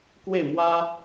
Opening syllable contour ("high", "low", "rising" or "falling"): falling